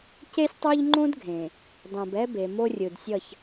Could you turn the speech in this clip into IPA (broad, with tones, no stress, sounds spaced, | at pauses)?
c e˦ sʲ tˤ o˦ ʎ ŋ͡ǃ õ˦ d ɡʱ ẽ˨ | dˤ õ˨ b ɛ˦ b e˨ m o˦ rʲ ɯ˨ d sʲ ʌ˦˨ ç